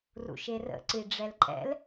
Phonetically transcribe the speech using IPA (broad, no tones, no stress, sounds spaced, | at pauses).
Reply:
r ṵ ʃ e r ə̰ ǀ i ɖ͡ʐ ɛ l ǃʼ ɛ̰ l